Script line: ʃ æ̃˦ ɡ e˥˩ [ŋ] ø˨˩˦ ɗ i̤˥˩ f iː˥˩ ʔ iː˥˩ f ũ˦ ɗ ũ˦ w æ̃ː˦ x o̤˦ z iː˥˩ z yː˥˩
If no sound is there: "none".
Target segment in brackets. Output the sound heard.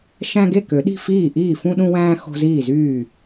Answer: k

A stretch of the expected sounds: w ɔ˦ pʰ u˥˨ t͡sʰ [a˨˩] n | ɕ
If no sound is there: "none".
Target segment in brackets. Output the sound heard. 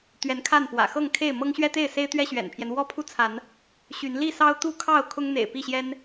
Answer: a˨˦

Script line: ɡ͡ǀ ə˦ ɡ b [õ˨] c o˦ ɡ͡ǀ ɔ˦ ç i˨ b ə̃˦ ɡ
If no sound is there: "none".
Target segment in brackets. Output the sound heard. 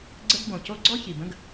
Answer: õ˨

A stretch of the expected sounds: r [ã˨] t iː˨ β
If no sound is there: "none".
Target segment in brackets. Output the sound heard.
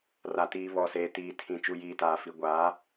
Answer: a˨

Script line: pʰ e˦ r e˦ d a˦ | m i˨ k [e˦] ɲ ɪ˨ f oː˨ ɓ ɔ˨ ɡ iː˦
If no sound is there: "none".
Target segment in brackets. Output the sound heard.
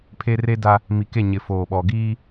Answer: e˦˨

